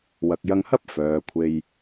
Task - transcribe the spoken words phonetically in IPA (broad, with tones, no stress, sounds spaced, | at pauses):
w ɐ˨ k̚ j ɐ˧ ŋ h ɐ˥ p̚ f œː˨ kʷʰ e˧ j